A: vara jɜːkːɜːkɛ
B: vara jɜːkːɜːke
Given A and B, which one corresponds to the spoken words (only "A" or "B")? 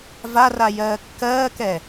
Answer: A